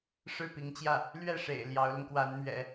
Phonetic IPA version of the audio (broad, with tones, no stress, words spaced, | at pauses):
ʂɻ̩˥˩pi˧˥ŋt͡ɕjä˥˩ | lɥɛ˥˩ʂḛ˨˩ɪ̯ ljɑ˧˥ʊ̯lʊ˧ŋkwa˧˥nmɥɛ̰˨˩˦